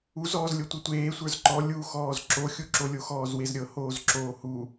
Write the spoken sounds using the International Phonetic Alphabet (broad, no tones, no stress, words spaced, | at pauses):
uz ɔːzlʲotʷɤtʷeː sʷə˞zǃɔ lʲuxɔːz ǁoxʲuǁolʲo xɔːzwezɾʲɤ hoːzǁoːhu